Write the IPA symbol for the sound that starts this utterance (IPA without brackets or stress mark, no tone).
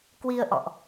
k